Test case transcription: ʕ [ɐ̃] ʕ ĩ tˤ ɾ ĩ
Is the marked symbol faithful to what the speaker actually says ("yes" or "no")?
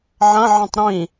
yes